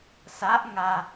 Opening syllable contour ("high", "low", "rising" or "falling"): rising